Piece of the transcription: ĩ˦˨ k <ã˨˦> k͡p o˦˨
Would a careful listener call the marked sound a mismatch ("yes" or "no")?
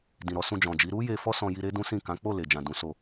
no